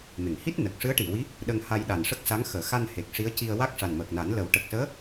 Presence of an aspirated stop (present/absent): absent